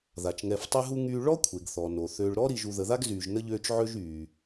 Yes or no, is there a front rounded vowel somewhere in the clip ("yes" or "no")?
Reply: yes